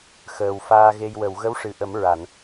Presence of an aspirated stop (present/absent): absent